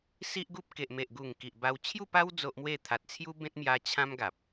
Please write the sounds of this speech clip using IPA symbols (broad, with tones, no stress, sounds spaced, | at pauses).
s i˦ ʔ ɡ u˦ p̚ k e˨ ʔ m e˨ ʔ ɡ u˨˩ ŋ k i˨ ʔ b a˧ w t͡ɕʰ j u˥˧ p a˦ w d͡z o˦ ʔ m w e˥˧ t̪ʰ a˨ t̚ t͡sʰ j u˦ b ẽ˦ t̚ m j a˧ t͡ɕʰ ã˦ m ɡ a˨ p̚